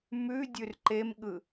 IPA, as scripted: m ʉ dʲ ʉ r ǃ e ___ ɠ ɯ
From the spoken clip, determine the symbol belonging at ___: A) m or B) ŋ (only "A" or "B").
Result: A